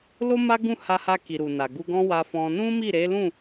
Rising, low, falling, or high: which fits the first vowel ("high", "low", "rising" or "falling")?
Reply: high